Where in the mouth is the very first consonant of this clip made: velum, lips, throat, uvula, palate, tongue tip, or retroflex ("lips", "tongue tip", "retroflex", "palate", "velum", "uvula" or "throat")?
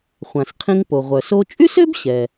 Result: uvula